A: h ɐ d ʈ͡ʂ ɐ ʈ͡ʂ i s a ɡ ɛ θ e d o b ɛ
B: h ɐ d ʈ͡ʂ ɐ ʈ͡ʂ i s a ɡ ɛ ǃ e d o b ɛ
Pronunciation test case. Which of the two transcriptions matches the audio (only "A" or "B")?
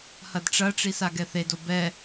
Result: A